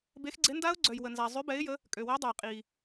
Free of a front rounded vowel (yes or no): no